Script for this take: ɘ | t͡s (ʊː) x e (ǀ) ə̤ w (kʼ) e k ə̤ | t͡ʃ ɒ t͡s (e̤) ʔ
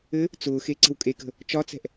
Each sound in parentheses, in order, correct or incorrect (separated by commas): correct, correct, correct, incorrect